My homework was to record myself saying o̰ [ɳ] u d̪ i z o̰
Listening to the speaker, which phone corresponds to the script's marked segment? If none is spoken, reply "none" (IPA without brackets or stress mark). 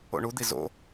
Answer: ɳ